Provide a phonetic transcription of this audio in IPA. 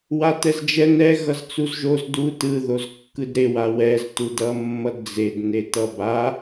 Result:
w a t ɛ z d͡ʒ ɛ n ɛ ɣ ʌ z t͡s u z ʒ o z d u t ɯ ð o z kː ɯ d ɾ e w a w ɛ z t u d ʌ mː ʌ d d͡z e d n e t ʌ b a

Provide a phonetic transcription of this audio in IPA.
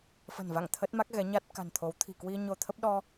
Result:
f ə̤˨˩ n v a̰˧˨ ŋ t̪ʰ ə˦˥ t̚ m a˦˥ k̚ ɣ ɛ˨˦ ɲ a˦˥ t̚ k a̤˨˩ n t̪ʰ o˨˦ w t̪ʰ i̤˨˩ k w i˧ ɲ o˧ t̪ʰ ə˦˥ p̚ ɗ ɔ˧

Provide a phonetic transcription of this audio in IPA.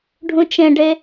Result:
ɖʱ ũ t͡ʃ ẽ ɖ e

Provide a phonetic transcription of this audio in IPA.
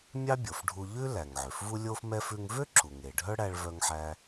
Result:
mʲ ɑ˥ bʲ o˩ f ɖʱ u˧ ʎ ʉ˥ l æ˩ ŋ ʕ ø˩ f v u˥ lʲ o˥ f m ɛ˥ f ʉ˧ ŋ v ø˥ ǁʰ u˩ ŋ e˩ ɖʱ œ˥ ɽ æ˧ ɭ v œ˧ ŋ ħ æ˧

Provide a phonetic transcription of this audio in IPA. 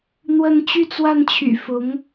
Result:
n̪ w ə˥˧ n t͡ɕ y˥˧ t͡s w a˥˩ n t͡ɕʰ y̰˨˩ f ʊ˧˥ ŋ

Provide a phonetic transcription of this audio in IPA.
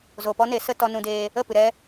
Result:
z o˨ p ɔ˦ n e˨˦ s ə˧ t ɔ˧ n ũ˧ d eː˧ | ə˦˨ p ɨ˨ ɾ ɛ˧

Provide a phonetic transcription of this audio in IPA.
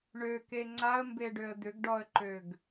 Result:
ɳ ø k e ŋ͡ǀ a ə̯ m b e ɖ ø ə̯ d̪ ʏ ɡ ɖ ɔ ə̯ ǃ ø ɡ

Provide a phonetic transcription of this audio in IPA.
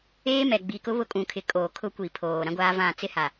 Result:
eː˦ m ɛ˨ ɡ͡b i˨ k ʊ˦ β ʊ˦ kʼ ũ˨ kʰ ɪ˨ kʼ o˨ kʰ ʊ˦ kʷ i˨ pʰ oː˨ ɾ ã˦ ɡʷ aː˦ v ã˦˨ t͡s ɪ˦ h a˨

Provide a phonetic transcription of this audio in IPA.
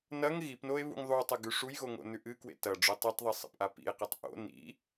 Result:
n ɐ ŋ ɣ i p n o e̯ β ṵ ŋ ðˤ u tˤ ɐ ɡ ʉ ʂ u j ɣ o ŋ o̰ n ʉ ʔ ɨ k w ḛ t ɐ ɖ͡ʐ ɵ tˤ i tˤ ðˤ i sˤ ḛ p ʔ a p ḭ e̯ q e tˤ ʔ o̰ n ḭ

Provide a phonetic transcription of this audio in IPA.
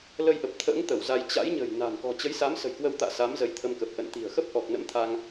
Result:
l ə˧ j ʔ ə˨˩ p̚ t̪ʰ ə̰ː˧˥ ŋ t̪ ə˧˩ w z a˧ j t͡ɕ a̰˧˥ j ɲ ə̤˨˩ j n a̤˨˩ n k ɔ̤˨˩ t͡ɕ ə˨˦ j s a˨˦ m s ə̤˨˩ j k w ə˧ w t̪ a̰ː˧˨ s a˨˦ m z ə˨˦ j t̪ʰ ə˧ m k ə˨˩ p̚ ʔ ə̰˧˨ n t̪ i̤˨˩ ə̯ x ə˦˥ p̚ ʔ ɔ˨˩ k̚ n ə̰˧˥ m t̪ʰ a˧ ŋ

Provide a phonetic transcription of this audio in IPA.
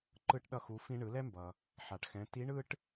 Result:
ǃ ɯ˧ ʈ ɗ ʌ˧ x u˩˧ f ĩ˧ ɳ ɯ˩˧ l ɛ˥ m b ʌ˩ | ħ a˩ ʈ x ɛ̃˩˧ t i˧˥ ɳ ɯ˥ ʈ

